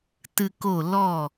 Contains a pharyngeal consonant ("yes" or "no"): no